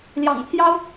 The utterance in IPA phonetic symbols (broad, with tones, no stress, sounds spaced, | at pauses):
l j ɑ̰˨˩ ŋ t̪ʰ j ɑ˥ ʊ̯